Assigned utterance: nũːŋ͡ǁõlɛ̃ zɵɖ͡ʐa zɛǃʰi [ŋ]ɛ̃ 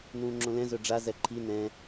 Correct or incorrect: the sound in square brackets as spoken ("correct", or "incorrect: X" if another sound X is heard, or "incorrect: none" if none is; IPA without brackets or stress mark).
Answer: incorrect: n